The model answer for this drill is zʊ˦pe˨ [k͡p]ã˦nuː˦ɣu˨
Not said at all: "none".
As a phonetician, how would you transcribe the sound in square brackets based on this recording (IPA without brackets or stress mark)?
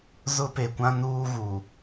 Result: kʷ